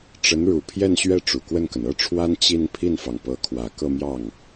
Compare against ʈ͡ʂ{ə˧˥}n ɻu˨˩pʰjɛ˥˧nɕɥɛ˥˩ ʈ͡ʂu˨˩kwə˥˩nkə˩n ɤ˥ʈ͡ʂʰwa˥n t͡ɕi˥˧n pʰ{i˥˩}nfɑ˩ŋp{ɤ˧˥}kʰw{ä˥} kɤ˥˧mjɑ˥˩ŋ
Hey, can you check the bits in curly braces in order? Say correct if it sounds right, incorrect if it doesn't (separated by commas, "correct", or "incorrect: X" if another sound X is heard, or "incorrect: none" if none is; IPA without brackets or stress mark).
correct, correct, correct, incorrect: ä˨˩